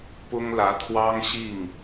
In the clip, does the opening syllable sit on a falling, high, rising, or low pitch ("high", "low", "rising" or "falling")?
high